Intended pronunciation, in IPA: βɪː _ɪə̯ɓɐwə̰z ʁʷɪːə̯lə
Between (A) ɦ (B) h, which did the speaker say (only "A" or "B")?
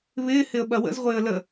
B